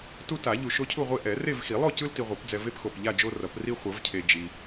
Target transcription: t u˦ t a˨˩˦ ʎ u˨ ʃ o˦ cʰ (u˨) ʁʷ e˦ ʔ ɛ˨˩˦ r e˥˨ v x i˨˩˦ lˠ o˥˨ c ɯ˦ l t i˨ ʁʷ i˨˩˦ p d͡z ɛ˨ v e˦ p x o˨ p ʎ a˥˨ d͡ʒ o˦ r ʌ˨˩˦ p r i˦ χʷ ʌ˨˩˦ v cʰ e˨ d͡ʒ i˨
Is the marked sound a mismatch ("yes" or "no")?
yes